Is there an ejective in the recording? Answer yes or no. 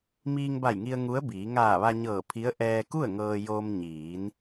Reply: no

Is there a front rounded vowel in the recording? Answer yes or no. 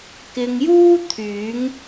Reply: yes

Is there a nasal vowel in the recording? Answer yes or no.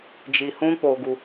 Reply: yes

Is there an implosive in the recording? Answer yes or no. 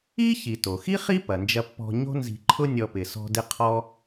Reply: no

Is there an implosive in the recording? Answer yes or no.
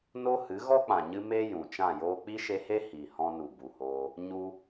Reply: no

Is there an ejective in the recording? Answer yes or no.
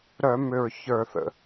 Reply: no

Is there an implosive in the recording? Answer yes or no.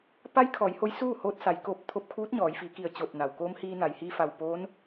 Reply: no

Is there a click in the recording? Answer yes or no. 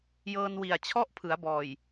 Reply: no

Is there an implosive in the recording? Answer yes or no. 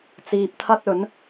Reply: no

